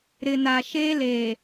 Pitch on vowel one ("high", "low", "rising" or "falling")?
low